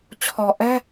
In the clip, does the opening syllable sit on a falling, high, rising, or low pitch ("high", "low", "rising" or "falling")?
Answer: low